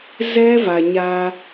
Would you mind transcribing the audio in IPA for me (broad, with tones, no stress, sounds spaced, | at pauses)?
z ɛ˦ v a˨ ɲ a˦